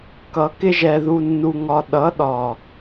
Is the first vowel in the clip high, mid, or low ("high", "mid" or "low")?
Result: mid